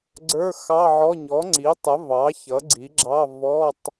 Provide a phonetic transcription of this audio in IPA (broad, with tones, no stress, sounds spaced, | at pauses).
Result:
ɡ͡ǀ ə˞˧˥˧ x ɑ˧˥˧ ʕ ɔ˧˥˧ ɲ ɔ˩˥ ŋ͡ǀ i˩˥ tˤ ə˩˥ v ɑ˩˥ ç ʌ˩˥ ɡ͡ǀ i˩˥ ɡ͡ǁ ɑ˧˥˧ v ɔ˧˥˧ tˤ